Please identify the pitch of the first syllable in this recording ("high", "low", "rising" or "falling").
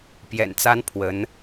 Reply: low